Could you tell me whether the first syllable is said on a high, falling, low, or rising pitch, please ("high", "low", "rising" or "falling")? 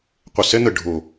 low